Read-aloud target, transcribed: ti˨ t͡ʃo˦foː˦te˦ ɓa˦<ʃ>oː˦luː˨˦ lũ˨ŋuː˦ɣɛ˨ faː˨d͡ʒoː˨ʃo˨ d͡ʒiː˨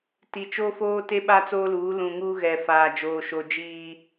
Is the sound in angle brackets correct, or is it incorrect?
incorrect: t͡s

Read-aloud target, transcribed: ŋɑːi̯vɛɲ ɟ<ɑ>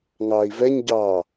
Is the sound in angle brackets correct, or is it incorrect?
correct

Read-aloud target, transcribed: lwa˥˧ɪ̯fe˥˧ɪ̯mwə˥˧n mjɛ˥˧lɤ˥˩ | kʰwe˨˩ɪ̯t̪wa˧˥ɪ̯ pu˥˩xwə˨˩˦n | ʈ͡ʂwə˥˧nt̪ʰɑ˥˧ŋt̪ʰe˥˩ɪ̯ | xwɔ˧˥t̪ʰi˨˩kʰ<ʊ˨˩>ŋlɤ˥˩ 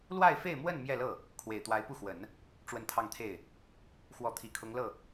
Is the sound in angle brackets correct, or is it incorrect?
incorrect: ʊ˧˥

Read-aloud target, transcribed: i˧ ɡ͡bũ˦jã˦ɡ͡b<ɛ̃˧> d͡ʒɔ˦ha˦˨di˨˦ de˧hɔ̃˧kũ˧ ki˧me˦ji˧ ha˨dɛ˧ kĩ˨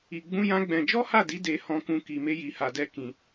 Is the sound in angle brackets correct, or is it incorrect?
correct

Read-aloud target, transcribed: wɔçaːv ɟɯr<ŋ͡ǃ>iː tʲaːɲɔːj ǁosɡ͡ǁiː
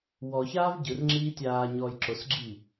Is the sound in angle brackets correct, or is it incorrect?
incorrect: ŋ͡ǁ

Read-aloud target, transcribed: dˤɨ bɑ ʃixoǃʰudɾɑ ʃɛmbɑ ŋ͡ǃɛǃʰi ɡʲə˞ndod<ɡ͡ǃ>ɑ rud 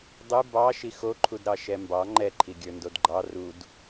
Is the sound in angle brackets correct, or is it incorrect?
correct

